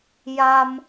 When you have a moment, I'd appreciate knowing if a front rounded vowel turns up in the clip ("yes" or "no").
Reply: no